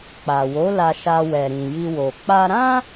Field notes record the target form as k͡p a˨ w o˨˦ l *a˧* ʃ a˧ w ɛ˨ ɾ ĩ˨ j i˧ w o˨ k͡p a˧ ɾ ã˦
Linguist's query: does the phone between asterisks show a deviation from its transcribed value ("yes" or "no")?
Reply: no